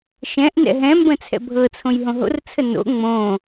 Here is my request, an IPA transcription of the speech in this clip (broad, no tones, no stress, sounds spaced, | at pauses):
ʃ ɛ̃ ʔ n ɛ̰ ɦ ɛ̃ m b ə̃ t͡sʰ ɛ̰ bʱ ɤ t͡sʰ õ j ɦ õ ɦ o̰ r t͡sʰ ə n o̰ ŋ͡m õ